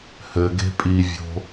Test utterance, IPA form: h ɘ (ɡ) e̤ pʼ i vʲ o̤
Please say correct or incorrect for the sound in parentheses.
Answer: correct